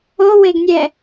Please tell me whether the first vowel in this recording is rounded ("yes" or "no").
yes